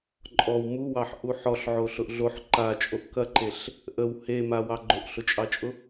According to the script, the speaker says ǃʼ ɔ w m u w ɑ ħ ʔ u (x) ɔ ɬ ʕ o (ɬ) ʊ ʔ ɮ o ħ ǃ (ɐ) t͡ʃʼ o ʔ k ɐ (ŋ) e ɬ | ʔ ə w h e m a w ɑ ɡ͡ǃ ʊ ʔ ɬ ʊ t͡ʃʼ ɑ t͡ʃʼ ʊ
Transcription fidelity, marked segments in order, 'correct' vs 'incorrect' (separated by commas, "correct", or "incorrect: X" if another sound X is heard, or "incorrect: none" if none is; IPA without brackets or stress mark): incorrect: ħ, correct, incorrect: a, incorrect: ǃ